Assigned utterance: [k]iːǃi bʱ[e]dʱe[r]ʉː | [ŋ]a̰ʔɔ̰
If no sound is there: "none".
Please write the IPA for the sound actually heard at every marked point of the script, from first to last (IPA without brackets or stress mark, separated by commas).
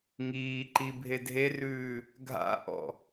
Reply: ŋ, e, r, ɡʱ